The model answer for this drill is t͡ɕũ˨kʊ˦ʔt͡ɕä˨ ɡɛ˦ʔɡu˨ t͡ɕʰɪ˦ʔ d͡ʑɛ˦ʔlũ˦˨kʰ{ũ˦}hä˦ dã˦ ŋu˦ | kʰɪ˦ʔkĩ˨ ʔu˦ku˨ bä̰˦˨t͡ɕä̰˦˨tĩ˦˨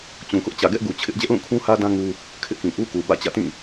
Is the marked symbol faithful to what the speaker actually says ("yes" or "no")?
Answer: yes